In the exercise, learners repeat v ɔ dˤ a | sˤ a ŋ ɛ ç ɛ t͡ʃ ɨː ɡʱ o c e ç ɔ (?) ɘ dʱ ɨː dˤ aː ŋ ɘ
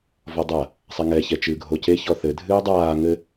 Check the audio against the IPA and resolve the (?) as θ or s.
θ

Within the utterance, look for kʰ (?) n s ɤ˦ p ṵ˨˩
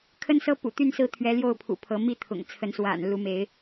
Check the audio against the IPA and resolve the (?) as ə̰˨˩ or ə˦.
ə˦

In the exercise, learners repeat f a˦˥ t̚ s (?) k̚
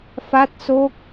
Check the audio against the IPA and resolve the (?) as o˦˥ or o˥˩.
o˦˥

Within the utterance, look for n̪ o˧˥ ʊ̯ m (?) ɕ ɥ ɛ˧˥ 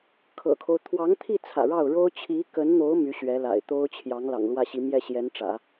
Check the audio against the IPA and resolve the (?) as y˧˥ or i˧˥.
y˧˥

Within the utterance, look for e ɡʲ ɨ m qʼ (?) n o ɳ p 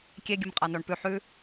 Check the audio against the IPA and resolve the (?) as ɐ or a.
a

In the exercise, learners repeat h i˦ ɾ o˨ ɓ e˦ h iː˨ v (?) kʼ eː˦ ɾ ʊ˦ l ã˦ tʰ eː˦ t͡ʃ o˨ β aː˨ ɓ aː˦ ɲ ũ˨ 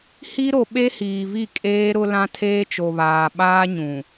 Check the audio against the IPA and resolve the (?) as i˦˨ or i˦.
i˦˨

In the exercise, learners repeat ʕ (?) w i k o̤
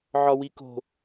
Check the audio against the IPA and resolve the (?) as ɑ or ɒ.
ɒ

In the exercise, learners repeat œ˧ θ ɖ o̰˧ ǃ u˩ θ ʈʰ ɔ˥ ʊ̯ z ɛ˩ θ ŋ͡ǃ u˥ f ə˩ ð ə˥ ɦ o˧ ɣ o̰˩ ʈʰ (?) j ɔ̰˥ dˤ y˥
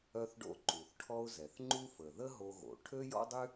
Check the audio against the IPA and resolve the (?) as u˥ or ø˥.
ø˥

